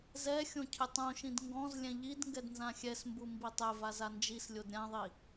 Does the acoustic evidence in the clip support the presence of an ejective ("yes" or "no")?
no